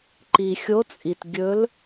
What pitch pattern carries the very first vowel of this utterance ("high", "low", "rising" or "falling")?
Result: low